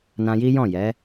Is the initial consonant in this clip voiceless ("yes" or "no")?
no